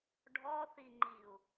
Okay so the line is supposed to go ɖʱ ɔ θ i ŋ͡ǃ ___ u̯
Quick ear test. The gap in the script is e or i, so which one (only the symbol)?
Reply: i